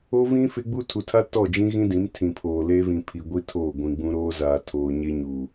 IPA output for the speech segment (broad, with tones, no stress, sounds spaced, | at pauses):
o˦ v ĩ˦ f ɪ˦ ɡ͡b u˦ tʰ u˨ tʰ a˦ t ɔ˦˨ d͡ʒ ĩ˦ ɣ ĩ˦ d ĩ˨˦ m tʰ ĩ˨ pʰ oː˨ l eː˦ v ĩ˨ pʰ i˨ ɡʷ i˦ tʰ oː˦˨ ɡʷ ĩ˨ ɡ͡b ũ˦ ɾ oː˦ z aː˨ tʰ oː˨ ɲ e˦ ɲ uː˨